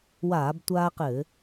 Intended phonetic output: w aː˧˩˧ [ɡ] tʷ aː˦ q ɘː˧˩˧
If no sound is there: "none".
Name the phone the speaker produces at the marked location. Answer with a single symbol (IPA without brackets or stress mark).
b